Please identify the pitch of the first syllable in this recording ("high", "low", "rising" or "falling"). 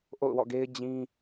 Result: falling